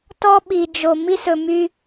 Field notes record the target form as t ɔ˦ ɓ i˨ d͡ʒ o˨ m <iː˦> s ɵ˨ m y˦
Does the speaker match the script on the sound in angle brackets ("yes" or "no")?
no